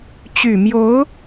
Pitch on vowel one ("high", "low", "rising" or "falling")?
low